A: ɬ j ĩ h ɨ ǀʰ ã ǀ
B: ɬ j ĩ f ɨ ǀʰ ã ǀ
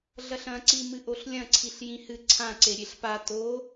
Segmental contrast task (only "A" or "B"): A